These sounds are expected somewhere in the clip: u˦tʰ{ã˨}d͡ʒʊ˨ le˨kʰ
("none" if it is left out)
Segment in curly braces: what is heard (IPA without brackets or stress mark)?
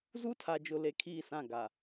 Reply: a˨